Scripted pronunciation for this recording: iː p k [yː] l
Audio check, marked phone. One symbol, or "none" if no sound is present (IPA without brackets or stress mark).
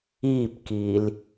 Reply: iː